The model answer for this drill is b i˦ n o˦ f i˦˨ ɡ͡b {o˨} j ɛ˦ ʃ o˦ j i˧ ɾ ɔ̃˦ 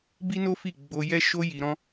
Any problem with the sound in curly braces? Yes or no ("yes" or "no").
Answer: yes